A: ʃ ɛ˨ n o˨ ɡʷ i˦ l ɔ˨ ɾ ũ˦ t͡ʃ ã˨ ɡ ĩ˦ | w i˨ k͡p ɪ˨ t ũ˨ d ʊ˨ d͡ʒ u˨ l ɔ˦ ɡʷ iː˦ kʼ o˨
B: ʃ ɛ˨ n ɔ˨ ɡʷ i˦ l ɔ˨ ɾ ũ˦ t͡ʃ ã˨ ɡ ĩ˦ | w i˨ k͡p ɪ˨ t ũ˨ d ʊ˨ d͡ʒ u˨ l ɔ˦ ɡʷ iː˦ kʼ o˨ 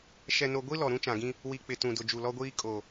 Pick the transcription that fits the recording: A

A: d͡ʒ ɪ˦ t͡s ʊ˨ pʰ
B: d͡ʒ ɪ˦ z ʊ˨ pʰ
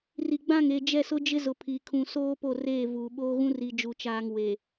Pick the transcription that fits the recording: B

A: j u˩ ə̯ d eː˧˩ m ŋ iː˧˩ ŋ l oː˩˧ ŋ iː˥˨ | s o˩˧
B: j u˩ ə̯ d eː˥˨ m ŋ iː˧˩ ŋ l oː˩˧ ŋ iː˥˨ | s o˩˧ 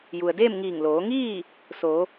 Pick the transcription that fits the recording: B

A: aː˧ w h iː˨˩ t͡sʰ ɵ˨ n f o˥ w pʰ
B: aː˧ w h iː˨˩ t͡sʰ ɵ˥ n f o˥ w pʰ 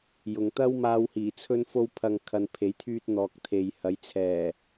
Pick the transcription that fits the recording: B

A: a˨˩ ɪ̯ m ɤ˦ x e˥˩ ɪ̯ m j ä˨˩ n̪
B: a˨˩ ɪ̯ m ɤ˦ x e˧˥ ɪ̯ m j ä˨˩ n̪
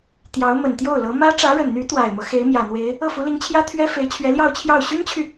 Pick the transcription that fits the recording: B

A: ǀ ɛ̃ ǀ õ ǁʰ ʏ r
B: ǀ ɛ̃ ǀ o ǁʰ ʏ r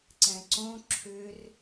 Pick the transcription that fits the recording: A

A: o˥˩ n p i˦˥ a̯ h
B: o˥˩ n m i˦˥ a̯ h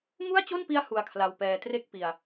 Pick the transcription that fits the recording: A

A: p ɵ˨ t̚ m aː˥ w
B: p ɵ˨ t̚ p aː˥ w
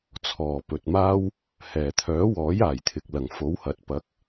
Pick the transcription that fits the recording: A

